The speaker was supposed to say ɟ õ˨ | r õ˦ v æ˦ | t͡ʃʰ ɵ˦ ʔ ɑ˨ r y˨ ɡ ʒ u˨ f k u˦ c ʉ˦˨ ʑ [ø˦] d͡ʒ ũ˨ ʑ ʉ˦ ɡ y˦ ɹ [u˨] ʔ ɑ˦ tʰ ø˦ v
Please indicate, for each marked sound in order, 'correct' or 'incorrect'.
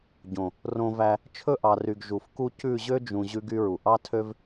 correct, correct

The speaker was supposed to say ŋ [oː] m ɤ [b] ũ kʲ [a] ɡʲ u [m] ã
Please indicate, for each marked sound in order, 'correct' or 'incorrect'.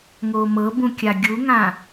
correct, correct, correct, incorrect

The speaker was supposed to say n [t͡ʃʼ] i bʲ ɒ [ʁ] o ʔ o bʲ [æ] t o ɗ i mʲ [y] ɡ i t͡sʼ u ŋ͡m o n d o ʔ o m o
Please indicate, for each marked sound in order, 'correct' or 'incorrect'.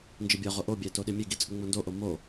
incorrect, correct, correct, incorrect

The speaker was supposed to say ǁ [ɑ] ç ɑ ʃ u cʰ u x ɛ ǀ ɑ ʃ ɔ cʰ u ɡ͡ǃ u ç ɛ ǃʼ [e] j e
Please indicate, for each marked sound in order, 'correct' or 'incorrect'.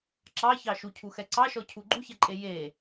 correct, correct

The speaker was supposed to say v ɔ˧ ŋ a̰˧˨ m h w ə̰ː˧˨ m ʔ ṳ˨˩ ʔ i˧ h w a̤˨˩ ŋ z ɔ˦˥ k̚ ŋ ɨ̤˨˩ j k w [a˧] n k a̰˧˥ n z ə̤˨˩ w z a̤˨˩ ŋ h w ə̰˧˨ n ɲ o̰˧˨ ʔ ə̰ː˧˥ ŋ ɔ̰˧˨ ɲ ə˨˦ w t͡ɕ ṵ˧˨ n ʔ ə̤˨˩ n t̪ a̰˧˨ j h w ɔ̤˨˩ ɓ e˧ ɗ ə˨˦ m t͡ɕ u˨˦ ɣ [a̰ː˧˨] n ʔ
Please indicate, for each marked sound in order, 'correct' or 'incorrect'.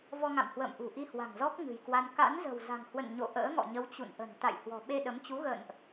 correct, incorrect

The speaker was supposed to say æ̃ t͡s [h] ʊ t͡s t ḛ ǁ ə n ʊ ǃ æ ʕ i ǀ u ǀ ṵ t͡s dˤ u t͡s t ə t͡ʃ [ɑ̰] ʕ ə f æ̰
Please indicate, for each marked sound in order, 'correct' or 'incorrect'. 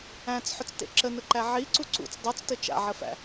incorrect, incorrect

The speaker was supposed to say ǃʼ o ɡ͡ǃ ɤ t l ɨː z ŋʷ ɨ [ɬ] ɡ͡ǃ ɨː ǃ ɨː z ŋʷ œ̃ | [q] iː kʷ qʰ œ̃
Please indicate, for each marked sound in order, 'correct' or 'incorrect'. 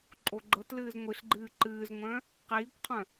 correct, correct

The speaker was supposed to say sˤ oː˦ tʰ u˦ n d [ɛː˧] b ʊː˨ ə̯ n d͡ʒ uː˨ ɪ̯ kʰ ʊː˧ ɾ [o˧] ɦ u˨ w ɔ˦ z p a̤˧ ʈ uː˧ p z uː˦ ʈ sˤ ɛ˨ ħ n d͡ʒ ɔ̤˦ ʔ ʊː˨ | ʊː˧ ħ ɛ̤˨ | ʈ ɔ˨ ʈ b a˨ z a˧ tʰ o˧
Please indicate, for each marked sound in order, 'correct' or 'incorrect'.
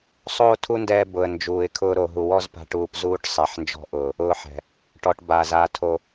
correct, incorrect

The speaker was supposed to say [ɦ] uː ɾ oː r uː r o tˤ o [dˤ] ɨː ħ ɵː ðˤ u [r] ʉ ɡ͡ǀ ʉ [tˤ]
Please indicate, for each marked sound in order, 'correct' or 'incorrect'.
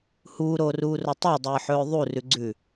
incorrect, correct, correct, incorrect

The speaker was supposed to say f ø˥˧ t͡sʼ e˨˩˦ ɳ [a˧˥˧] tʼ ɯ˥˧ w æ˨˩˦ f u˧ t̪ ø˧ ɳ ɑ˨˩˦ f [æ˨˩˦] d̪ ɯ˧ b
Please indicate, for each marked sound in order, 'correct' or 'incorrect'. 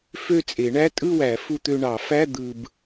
incorrect, incorrect

